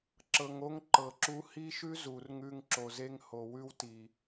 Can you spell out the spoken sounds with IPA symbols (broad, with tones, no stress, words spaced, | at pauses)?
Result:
ǁɤ˨ŋo˧ŋ ǃɤ˨ǁu˧ hi˦ʃʉ˦ zu˨rŋʉ˧ŋ ǁo˨ze˧ŋ ho˨wʉ˧wti˨